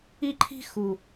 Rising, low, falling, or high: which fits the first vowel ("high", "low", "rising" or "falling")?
high